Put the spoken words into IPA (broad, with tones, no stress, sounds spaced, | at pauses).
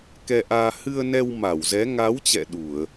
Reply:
k ɛ˧ ʔ aː˧ h ɨ˧ ə̯ n ɛ˧ w m a˧˩ w z ɛ˨˦ ŋ a˨˦ w t͡ɕ ɛ̰˧˨ ɗ u˧˩˨ ə̯